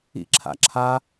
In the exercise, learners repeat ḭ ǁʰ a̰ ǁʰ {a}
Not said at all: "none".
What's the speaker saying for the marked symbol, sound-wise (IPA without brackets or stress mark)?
a